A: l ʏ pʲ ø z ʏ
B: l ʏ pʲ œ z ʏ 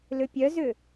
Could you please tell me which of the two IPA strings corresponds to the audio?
B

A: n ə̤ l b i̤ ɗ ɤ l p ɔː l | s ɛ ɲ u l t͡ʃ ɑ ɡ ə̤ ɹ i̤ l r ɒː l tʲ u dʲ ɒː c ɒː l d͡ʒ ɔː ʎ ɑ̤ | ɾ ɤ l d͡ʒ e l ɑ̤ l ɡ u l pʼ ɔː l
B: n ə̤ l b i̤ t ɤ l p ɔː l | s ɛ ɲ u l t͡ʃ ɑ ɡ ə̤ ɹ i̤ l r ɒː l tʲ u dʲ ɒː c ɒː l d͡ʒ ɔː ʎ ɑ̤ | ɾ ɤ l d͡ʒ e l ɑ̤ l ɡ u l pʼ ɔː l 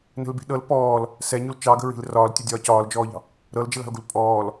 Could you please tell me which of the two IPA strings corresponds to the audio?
A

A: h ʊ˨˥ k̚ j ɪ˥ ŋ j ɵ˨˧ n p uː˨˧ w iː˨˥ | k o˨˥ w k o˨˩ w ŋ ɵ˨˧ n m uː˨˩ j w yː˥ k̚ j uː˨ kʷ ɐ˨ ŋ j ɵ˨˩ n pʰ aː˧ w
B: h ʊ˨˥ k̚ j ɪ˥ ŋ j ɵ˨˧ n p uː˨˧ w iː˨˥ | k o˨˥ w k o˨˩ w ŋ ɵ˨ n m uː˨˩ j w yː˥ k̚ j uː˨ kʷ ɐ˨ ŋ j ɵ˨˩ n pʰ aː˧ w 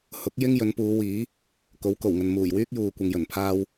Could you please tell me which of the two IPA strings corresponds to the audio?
B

